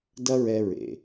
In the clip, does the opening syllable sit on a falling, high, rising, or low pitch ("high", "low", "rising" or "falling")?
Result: high